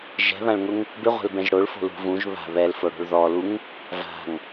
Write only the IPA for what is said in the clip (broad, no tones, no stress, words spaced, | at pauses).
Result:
ʒɛ̤βãɭŋʊŋ | bɪʁʷɛ̤lbɛ̃ʒ ɽoɭfo̤ lṳ vũʒ βa̤ βɛlfoɽo̤ɭ ðɔluŋ | va̤ŋ